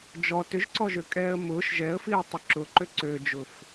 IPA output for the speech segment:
d͡ʒɔ tʏʒǀɔʒøkʼɛːə̯ mʊːʃ ʒɛə̯fiə̯tˤʏ ǁʊǃø ǀød͡ʒʊf

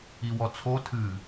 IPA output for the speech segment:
iwɔt͡sʰo tʰɨ

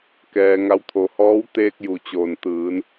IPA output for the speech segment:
kɛː˧ŋa˧˥w t̪ʰo˩hɔː˧˥w t̪eː˧k̚ju˩t͡ɕoː˩n t̪ɯː˩˧n

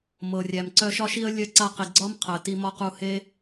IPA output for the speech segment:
mɤ˩rʲæ˩mǀœ˧ ʃɒ˧ʃi˧ə̯ lʲœ˧ǀa˧qi˩ɡ͡ǀɒ˥m qʰə˩ti˧mɒ˥qu˧ he˥

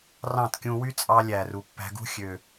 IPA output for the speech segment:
rɑ̃˦˨tkʲũ˧wy˦t͡sʼɑ˧ lʲæ˨ru˨ pːæ̤˧ɡṳ˦ xʲø˨

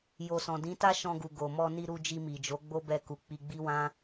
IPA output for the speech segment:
jo˨sɔ̃˨dĩ˨˦ta˦ ʃɔ̃˧ɡu˨ ɡo˨ mɔ˧ni˧ɾu˧ d͡ʒi˧mi˨d͡ʒo˨˦ ɡ͡bo˦bɛ˧ku˨ k͡pi˧ɡ͡bi˦wã˦

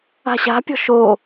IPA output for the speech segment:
a̤ɕa̤pʲɔ̤ ʃo

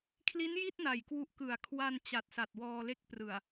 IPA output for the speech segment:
kʰli˦˥nji˥˩t̚na˨˩j kwu˨˩ʔ kɯ˨˩a̯ kʰwa˧nt͡ɕa˨˩t̚sa˨˩t̚ wɔː˧le˦˥k̚prɯ˨˩a̯

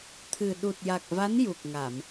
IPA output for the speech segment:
t̪ʰɨ˨˩ ɗu˨˩t̚ja˨˩k̚va˧˥n ju˨˩k̚ŋa˨˩˨m

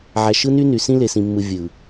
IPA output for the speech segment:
ʕæ˨ʃɯ˦ ny˦ny˨ sĩ˦le˨sĩ˨mːɯ˨ vʲɯ˨

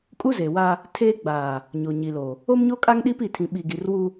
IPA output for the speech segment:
kʼu˦ze˨wa˦ | tʰeː˦ ɡ͡baː˨ | ɲo˨ɲi˨lo˨ | o˦mɲo˦kʼa˦ŋ ɗi˦pi˦˨tʰĩ˨ ɓi˨ɡi˨rwu˦

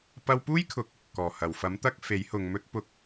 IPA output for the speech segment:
pɐ˧wpuː˥jkʰʊ˨k̚ | kɔː˨˩hɐ˨˩w fɐ˨˥mt̪ɐ˧k̚ fe˨˥jhʊ˨ŋmɵ˥t̚pʊ˧k̚

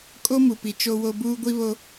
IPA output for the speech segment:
kʼo˦mu˨pi˨ t͡ʃo˦wo˦ buː˦ɡʷi˦βo˦

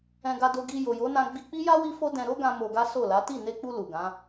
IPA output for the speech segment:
ɛ̃˧ɡa˧ do˧ɡi˧ jo˨jo˨˦nã˧ ɡ͡bi˧k͡pi˦ja˦ wi˦fo˦dɛ̃˧ ɾo˦ɡã˧ mo˧ɡa˦ so˦˨la˨˦ ti˦˨ne˧k͡pu˧ lu˨ɡã˨˦

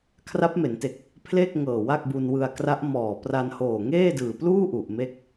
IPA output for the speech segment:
kʰra˦˥p̚me˩˦nte˨˩k̚ | pʰle˥˩k̚ŋɤː˨˩ wa˥˩k̚bu˧nwɯ˧a̯ kra˦˥ʔ mɔː˨˩pra˧nhoː˨˩ ŋeː˥˩dɯː˨˩pluː˥˩ ʔu˨˩ʔme˥˩k̚

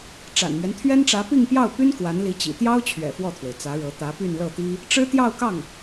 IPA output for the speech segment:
ʈ͡ʂa̰˨˩nmɥɛ˦nt̪ʰɥɛ˥nʈ͡ʂä˧˥ pi˥˧ŋpjɑ˥˩ʊ̯py˥n kwa˧˥nli˧˥t͡ɕḭ˨˩ t̪jɑ˥ʊ̯t͡ɕʰɥɛ̰˨˩ fwɔ˥˩t̪ʰwe˩ɪ̯t͡sä˧˥ɻɤ˧˥ t̪ä˧˥py˥˧nlɤ˥˩t̪i˥ | ʈ͡ʂɻ̩˥t̪jɑ˥˧ʊ̯kɑ˥˩ŋ

